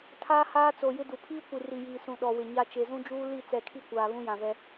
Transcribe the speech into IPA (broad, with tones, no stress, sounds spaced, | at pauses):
tʰ aː˦ h aː˦ t͡s o˨ j ɪ˦ d u˨ pʰ iː˦ kʷ i˨ r i˨ j iː˨ s ũ˨ ɗ ɔ˨ w ɪ˨ ɲ a˦ t͡ʃ e˨ z ũ˦ d͡ʒ uː˦ l i˦˨ t͡s ɛ˨ kʰ i˦˨ kʷ aː˨ β ũ˦ j ã˨ v ɛ˦